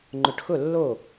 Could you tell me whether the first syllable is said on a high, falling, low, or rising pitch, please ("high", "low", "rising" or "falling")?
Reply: low